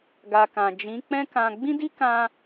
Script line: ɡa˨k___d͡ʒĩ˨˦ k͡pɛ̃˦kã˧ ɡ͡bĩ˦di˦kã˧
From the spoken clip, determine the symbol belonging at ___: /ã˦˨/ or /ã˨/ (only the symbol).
ã˨